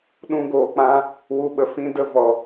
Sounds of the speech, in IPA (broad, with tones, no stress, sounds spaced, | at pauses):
ɗ ũ˧ ɡ oː˨ k͡p ã˧ | w u˨ ɓ ə˨ f ĩ˧ d ə˧ v ɔ˨